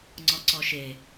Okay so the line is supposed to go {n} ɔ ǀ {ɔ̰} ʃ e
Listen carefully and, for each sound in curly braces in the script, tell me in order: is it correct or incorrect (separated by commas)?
incorrect, incorrect